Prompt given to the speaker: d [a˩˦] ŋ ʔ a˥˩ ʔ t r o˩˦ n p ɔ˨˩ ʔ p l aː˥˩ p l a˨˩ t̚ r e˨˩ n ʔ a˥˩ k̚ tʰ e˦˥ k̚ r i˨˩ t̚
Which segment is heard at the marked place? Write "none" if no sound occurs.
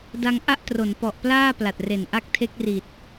a˧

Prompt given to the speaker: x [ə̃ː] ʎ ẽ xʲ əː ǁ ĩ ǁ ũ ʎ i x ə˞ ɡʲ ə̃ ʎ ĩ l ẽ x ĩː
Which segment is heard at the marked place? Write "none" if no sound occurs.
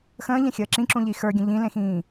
ə̃ː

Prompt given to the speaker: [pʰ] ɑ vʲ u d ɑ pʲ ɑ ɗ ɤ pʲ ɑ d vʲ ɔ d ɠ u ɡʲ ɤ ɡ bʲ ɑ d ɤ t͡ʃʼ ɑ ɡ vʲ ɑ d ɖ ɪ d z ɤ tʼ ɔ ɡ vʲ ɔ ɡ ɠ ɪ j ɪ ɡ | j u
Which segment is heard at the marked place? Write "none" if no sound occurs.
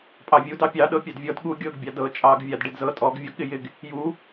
pʼ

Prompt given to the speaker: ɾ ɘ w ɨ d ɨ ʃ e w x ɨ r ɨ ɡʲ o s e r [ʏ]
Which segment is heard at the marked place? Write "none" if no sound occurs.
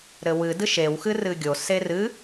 ɨ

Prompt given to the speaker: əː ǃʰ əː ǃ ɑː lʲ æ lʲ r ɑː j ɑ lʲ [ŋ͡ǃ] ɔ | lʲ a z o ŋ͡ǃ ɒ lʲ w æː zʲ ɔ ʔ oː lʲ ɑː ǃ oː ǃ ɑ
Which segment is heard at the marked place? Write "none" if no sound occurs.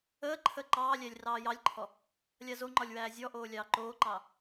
ǃʰ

